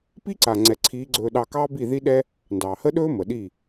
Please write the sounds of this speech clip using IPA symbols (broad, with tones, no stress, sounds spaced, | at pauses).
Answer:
p i˦ ǀ a˨ ŋ͡ǀ ɛ˨ ǀʰ iː˨˦ ɡ͡ǀ ɵː˧ ɗ ɑ˧ k ɑː˦ b i˦˨ ð i˦ ɗ ɛ˦ | n d ɑː˨ h ə˦ ɗ ɵː˦ m ə˨ ɗ i˦˨